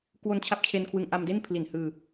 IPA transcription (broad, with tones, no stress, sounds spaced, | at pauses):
k w o˧ n t͡ɕʰ a˦˥ p̚ t͡ɕʰ e˧ n kʰ w ɯ˧ ŋ ʔ a˧ m d e˥˩ n pʰ l i˨˩ n h ɯː˧